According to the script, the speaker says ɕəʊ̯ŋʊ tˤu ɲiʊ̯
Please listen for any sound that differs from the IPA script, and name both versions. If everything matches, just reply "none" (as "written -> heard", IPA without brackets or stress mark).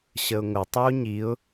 none